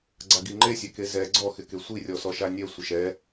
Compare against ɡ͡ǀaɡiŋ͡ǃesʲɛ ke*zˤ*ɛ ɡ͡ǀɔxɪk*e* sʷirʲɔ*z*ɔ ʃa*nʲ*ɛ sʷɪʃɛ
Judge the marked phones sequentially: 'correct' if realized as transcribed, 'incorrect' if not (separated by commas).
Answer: incorrect, correct, incorrect, correct